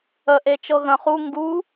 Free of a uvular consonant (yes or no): no